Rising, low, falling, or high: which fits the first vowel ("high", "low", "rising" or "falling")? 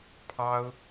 high